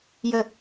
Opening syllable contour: falling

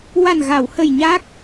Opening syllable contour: low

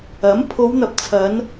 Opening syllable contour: rising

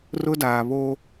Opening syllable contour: high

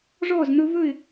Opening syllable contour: falling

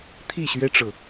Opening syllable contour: falling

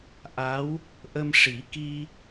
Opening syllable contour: rising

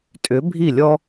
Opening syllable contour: rising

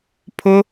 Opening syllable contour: high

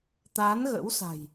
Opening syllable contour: rising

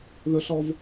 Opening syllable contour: high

